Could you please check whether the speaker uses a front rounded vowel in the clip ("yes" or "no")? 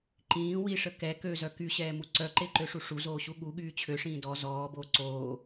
yes